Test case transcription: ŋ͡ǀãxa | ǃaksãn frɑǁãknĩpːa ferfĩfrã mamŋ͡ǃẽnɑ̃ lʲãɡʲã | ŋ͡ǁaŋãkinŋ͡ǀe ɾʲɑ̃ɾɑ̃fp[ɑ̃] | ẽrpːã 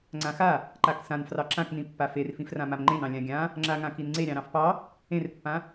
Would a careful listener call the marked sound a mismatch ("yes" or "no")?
yes